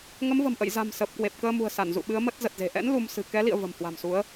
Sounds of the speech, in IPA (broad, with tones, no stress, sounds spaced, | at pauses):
ŋ ə˨˦ m v ə̤˨˩ m ʔ ə̰˧˨ j z a̤˨˩ m s əː˨˩ p̚ k w e˨˩ p̚ k əː˧ m ṳ˨˩ ə̯ s a˧˩ n z ṵ˧˨ ɓ ɨ˨˦ ə̯ m ə˦˥ t̚ z ə˨˩ t̚ z e̤˨˩ ʔ ɛ̰˧˥ n l u˧ m s ɨ̤˨˩ k ɛ˨˦ l ḭ˧˨ ə̯ v ə̤˨˩ m h w a̤˨˩ m s u˨˦ ə̯